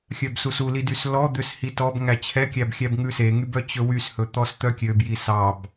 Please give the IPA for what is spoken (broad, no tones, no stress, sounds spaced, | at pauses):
xʲ œ b s u s u l i d y s l ɔ d̪ ø s h i t ɔ b ŋ æ t͡ɕʰ ɛ kʲ æ b xʲ æ b ŋ ʉ s e ŋ y b œ t͡ɕ ɵ w y s h ɵ t̪ ɔ s t̪ œ kʲ ø b j i s ɑ b